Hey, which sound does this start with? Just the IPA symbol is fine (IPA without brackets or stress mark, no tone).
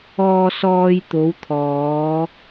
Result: ɔː